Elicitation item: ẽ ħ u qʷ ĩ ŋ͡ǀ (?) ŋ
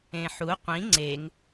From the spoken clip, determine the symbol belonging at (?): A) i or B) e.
B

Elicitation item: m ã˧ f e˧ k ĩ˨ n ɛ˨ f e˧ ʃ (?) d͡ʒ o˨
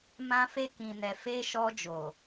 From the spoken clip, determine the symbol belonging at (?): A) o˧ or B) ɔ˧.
B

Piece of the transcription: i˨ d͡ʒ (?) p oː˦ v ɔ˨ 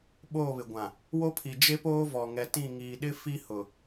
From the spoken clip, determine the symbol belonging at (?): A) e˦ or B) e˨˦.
A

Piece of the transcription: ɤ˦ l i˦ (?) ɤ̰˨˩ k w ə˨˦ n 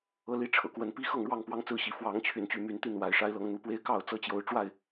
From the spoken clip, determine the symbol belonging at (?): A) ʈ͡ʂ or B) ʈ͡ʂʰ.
B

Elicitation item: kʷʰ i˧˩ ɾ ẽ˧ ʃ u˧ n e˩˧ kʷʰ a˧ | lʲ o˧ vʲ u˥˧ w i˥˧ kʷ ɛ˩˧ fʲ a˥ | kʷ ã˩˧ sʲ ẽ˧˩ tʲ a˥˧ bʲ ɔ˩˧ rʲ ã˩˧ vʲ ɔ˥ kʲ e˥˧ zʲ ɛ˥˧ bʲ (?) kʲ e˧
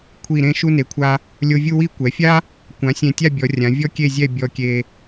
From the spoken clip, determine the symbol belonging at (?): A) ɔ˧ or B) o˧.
A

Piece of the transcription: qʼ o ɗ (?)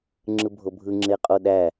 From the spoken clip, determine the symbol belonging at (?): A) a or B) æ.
B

